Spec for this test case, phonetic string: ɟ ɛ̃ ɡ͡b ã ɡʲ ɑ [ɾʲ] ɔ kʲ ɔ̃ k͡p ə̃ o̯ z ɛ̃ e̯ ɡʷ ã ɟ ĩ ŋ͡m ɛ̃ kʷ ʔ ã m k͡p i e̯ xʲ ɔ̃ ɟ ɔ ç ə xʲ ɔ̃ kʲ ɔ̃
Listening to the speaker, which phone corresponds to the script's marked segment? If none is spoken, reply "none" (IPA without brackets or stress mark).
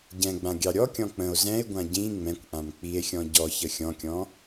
ɾʲ